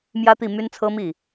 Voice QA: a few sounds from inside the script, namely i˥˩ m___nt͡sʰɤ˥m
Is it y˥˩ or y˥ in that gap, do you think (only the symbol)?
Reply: y˥